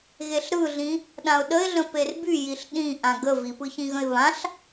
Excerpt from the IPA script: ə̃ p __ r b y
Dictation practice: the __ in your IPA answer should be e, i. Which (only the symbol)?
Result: e